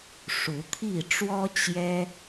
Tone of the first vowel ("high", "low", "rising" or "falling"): rising